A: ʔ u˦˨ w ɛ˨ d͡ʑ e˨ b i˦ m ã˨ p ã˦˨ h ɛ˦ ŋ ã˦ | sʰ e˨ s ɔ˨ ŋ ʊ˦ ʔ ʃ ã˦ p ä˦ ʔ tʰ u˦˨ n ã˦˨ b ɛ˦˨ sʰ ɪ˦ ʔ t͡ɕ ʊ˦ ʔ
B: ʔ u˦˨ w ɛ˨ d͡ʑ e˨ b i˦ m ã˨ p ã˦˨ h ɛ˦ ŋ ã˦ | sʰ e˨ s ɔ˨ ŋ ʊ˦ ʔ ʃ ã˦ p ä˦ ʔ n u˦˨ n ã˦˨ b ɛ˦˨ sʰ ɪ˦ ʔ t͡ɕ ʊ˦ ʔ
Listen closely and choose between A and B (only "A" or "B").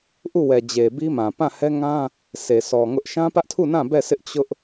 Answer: A